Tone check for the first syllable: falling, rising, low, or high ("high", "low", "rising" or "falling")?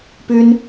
high